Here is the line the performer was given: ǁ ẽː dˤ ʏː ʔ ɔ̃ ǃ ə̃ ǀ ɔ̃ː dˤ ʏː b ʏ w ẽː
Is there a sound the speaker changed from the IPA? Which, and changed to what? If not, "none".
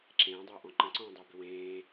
none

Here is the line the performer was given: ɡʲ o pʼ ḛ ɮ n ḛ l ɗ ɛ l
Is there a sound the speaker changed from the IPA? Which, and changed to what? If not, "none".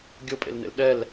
ɮ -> l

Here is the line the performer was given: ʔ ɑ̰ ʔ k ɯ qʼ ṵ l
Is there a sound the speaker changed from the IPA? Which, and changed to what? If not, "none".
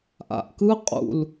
ɑ̰ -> a̰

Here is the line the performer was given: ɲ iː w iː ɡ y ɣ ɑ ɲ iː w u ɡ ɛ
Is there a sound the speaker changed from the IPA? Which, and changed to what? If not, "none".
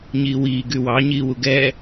ɣ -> w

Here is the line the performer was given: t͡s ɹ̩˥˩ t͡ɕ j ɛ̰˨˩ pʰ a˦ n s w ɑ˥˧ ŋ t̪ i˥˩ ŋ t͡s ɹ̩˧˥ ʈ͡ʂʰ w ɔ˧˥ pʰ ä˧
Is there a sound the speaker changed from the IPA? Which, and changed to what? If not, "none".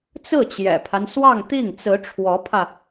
none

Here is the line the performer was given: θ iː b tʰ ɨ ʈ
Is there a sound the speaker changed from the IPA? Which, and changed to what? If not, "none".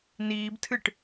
θ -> n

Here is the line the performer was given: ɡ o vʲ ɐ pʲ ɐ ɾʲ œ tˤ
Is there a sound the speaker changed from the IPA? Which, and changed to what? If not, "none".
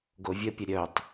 none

